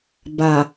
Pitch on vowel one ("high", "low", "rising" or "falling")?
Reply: low